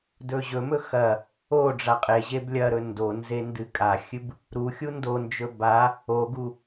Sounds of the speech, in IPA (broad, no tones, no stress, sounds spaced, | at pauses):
d ɵ ʑ ɵ m ɵ x ɐ | o ɖ͡ʐ a qʼ e ʑ e b lʲ ɐ ɾ ɵ n d o n z e n d ɨ kʼ a xʲ ɨ b | ɾ u xʲ u n d o n d͡ʒ ɵ b a | o ɡ u